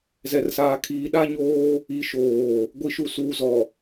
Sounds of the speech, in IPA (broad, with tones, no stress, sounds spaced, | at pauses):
z ɛ˨ r s aː˨ kʰ iː˨ ɗ a˦ ɲ oː˦ | i˨ ʃ oː˨ | ɡʷ i˨ ʃ u˨ s uː˨ z ɔ˨